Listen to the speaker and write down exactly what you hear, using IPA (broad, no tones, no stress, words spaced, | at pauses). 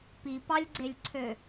pipɑlʲɡ͡ǀelʲǀʰø